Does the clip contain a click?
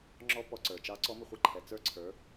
yes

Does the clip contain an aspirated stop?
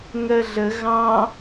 no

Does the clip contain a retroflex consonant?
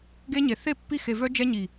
no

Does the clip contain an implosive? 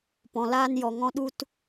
yes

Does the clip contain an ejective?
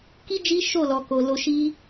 no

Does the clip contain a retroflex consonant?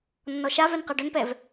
yes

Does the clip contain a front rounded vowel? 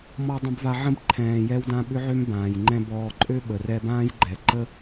yes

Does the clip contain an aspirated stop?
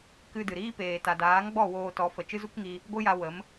no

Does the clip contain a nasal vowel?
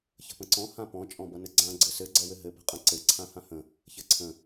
yes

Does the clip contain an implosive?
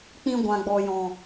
no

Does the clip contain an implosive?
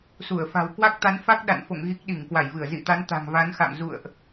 yes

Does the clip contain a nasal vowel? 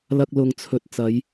no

